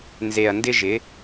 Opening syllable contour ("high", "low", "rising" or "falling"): low